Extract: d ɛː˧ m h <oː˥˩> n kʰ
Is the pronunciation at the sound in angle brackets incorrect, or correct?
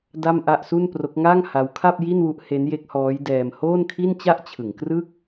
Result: correct